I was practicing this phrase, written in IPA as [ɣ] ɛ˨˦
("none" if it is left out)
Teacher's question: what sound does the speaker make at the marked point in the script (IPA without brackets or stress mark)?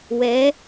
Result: w